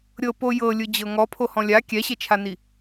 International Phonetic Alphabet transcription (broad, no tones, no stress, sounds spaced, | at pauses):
ɾʲ ɤ p o j ɤ lʲ ɯ d͡ʑ ɤ ŋ ɔ pʰ o h ɔ̃ lʲ a kʲ ɛ ɕ e t͡ʃʰ a n i